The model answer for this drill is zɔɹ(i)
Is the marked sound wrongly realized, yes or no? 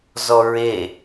yes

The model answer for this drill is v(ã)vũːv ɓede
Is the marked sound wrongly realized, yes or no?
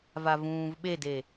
yes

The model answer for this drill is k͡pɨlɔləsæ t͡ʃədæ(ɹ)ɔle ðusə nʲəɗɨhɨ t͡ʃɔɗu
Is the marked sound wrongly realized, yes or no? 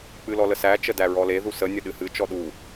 no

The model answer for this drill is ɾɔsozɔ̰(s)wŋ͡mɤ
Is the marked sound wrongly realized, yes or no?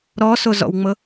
yes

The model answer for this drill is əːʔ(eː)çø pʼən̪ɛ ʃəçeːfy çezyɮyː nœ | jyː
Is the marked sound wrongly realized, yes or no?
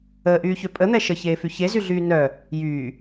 yes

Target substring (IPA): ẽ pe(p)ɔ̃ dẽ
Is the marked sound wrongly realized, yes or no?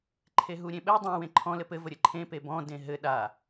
yes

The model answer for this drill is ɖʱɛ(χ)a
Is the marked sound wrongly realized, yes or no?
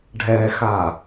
yes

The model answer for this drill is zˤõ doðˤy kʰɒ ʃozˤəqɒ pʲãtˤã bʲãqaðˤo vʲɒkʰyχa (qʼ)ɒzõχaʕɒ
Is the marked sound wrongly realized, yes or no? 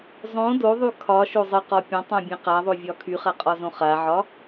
no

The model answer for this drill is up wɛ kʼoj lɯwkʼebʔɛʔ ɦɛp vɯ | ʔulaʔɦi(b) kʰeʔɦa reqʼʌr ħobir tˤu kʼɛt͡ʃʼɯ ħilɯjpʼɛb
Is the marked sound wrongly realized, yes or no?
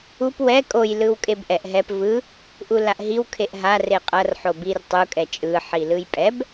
yes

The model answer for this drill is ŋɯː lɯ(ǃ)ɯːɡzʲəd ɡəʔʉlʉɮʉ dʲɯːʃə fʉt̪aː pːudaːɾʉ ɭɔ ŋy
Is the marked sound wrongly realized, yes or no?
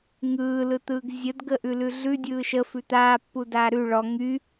yes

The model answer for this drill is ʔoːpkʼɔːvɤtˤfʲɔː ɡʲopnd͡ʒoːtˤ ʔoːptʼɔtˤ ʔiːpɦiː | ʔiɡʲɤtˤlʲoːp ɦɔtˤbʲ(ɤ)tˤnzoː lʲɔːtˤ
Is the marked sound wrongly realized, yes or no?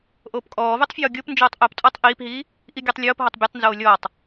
no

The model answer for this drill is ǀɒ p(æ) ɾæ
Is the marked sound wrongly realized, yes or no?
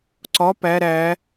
no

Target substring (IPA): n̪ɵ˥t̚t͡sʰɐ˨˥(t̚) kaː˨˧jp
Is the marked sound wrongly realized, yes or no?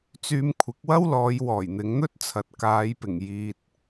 no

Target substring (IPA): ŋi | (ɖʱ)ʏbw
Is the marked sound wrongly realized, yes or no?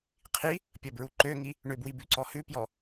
yes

